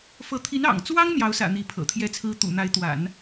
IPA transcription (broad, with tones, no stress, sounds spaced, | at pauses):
f ɤ˧˥ t̪ʰ i˧˥ n ɑ̰˨˩ ŋ t͡s w ɑ˥ ŋ n̪ j ɑ˧˥ ʊ̯ s ä̰˨˩ n̪ i˧˥ pʰ ɤ̰˨˩ t̪ʰ j ɛ˥ t͡sʰ ɹ̩˥ t̪ ṵ˨˩ n̪ a˧˥ ɪ̯ t̪ w a̰˨˩˦ n